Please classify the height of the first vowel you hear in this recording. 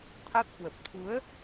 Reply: low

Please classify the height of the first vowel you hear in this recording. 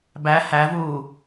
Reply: low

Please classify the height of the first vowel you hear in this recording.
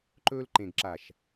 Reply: mid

